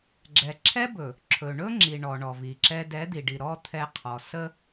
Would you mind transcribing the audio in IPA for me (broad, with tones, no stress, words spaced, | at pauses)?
ɡ͡ǁɛ˨ǁʰɛ˦bɵ˨ | ǁʰɵ˨ɳɵ˦ŋ͡ǁi˨ ɳɔ˨ ɳɔ˨vi˨ǁɛ˦ dɛ˨˦d̪i˨ɖi˨ ɾɔ˦ t̪ʰɛ˦qʰɔ˨ sə˦